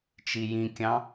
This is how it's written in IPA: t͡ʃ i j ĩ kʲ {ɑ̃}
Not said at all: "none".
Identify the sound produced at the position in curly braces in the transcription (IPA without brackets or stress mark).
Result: ɑ̃